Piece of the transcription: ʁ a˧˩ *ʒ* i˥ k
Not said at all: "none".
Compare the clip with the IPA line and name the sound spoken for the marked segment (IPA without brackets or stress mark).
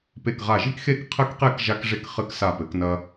ʒ